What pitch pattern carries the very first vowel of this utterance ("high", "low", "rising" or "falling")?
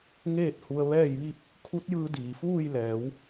falling